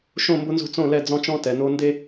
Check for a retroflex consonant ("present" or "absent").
absent